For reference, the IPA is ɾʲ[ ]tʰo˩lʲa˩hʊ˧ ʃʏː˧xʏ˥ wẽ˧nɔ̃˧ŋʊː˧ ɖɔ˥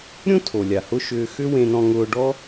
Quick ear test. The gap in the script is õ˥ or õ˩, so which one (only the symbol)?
õ˥